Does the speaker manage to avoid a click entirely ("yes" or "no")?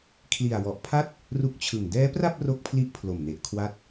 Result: yes